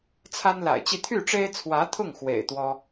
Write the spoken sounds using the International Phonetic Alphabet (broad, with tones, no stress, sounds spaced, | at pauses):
t͡sʰ a˥ n l a̰˨˩ ɪ̯ t͡ɕ i˥˧ t̪ʰ y˥˩ ʈ͡ʂ e˥ ɪ̯ t͡sʰ w ä˧˥ t̪ʰ ʊ˥˩ ŋ x w ḛ˨˩ ɪ̯ t̪ w ɔ˥